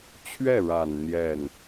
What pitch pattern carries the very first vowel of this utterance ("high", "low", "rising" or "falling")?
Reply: falling